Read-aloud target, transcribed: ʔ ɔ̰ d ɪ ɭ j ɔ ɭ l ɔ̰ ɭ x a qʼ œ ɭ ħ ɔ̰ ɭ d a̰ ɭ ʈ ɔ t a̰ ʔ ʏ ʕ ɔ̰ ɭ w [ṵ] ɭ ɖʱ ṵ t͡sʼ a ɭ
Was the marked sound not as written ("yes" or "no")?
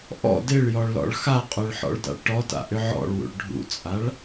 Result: no